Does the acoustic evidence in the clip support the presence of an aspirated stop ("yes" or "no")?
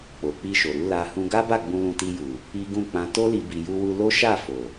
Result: no